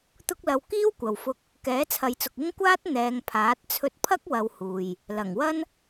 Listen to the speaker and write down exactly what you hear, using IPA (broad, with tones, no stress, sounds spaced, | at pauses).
t̪ ʊ˥ k̚ l ɐ˧ w k iː˥ w kʷ ɐ˨ w f ʊ˧ k̚ | k ɛː˨˥ t͡sʰ ɐ˨˧ j t͡s ʊ˨ k̚ ɪ˥ ŋ kʷ aː˥ t̚ n̪ ɛː˨˧ ŋ pʰ aː˨˥ t̚ t͡sʰ ɵ˧ t̚ pʰ ɐ˥ k̚ w ɐ˧ w h uː˨ j | l ɐ˨˩ ŋ w ɐ˥ n